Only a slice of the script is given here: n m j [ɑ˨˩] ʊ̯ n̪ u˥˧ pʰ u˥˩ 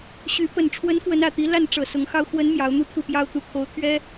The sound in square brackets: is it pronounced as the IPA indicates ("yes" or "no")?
no